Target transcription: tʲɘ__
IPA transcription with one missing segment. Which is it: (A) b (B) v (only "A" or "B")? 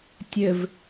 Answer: B